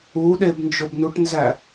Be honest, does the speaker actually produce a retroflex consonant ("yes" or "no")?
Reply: yes